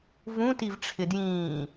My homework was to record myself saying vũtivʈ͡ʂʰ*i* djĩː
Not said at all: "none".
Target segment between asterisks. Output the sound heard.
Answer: ɪ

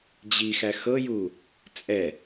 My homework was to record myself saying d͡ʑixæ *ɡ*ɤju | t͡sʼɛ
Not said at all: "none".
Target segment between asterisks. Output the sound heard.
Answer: x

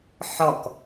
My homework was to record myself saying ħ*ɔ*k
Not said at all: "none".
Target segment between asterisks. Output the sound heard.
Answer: ɔ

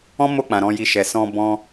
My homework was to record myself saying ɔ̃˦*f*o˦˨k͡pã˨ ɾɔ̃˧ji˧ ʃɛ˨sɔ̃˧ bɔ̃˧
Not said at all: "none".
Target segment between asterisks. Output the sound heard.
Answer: m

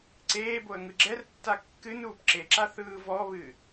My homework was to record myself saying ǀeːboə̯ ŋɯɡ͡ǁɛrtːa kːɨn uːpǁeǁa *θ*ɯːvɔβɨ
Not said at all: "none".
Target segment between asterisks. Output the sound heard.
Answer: θ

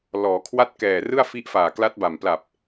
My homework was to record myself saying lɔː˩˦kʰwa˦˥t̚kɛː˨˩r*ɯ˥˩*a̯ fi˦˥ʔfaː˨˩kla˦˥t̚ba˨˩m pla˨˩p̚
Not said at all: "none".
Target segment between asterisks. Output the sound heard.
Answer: ɯ˥˩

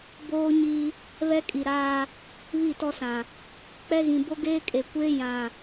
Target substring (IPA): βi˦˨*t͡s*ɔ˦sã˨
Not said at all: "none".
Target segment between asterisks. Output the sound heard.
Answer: t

